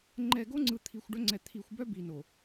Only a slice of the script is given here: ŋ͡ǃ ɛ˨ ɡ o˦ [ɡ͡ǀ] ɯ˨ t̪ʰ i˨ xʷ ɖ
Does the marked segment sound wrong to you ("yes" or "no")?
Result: yes